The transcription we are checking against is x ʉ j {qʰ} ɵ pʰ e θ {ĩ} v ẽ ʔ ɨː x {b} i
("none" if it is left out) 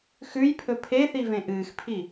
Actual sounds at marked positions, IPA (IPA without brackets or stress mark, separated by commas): pʰ, i, pʰ